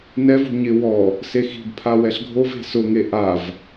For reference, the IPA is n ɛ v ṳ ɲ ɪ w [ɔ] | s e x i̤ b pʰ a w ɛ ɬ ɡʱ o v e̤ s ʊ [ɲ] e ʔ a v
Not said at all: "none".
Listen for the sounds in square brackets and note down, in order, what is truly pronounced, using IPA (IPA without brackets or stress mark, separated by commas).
ɔ, ŋ